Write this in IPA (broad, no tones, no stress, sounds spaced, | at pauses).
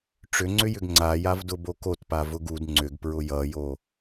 ʈ͡ʂ ʏ ŋ͡ǀ ʏ j ʏ ɡ ŋ͡ǀ a j a v d ʊ b o k o t p a v ʊ ɡ u d ŋ͡ǀ ʏ ɡ p ɹ ʊ j ʌ j o